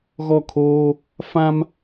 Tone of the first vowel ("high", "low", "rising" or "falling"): falling